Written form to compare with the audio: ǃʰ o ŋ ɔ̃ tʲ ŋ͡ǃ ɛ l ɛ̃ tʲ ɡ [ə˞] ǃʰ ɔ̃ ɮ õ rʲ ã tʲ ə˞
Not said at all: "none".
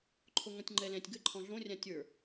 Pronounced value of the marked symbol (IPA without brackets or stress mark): ə